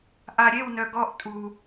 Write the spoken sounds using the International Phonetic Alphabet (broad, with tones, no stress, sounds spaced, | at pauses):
ʔ a˨ ɾʲ e˦˨ w n œ˨ ɡ ɔ˧ ʔ tʼ u˨